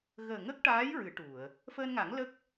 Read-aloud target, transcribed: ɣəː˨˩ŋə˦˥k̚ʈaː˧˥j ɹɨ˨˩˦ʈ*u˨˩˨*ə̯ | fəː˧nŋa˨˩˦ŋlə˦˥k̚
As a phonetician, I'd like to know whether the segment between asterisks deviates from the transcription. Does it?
no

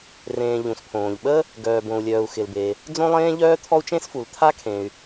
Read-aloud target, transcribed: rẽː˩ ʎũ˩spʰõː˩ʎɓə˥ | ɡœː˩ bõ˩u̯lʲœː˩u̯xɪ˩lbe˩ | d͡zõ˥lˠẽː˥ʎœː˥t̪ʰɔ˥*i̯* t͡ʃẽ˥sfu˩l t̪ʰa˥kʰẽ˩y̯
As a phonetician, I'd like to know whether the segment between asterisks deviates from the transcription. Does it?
yes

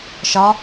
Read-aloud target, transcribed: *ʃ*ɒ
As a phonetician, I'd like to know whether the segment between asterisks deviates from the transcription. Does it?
no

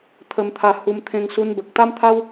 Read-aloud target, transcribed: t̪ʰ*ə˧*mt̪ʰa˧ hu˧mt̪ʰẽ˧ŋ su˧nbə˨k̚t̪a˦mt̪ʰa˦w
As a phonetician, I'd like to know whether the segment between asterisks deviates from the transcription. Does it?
no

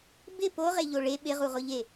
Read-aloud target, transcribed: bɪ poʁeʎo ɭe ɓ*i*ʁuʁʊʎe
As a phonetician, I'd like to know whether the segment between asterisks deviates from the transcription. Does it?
yes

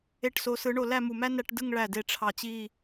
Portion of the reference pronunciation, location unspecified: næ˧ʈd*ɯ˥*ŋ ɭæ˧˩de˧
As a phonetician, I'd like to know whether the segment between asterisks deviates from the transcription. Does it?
yes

